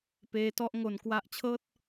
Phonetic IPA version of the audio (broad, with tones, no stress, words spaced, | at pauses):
peː˦˥tɔ˦˥ʔŋo˧n kwa˦˥ʔt͡ɕʰɤː˥˩t̚